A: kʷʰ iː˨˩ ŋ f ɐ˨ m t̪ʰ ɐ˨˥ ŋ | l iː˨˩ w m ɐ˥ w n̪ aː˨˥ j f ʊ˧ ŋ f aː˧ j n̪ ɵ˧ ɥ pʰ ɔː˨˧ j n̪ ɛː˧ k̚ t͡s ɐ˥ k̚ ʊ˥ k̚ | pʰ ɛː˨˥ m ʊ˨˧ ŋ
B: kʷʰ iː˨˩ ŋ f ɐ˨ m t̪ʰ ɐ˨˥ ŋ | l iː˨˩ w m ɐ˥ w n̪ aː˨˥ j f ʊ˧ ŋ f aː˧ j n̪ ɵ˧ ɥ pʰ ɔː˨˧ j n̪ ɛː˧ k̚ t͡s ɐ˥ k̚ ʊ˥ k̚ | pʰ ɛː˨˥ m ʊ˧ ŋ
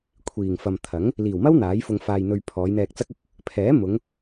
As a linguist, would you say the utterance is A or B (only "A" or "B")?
A